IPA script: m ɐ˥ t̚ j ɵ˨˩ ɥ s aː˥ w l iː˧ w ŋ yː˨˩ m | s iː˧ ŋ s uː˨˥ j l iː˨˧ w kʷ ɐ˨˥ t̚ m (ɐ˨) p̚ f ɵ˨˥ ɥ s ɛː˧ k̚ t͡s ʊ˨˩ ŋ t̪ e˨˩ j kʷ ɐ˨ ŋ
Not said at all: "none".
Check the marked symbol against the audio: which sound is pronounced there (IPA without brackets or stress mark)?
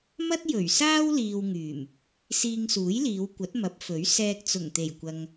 ɐ˨˥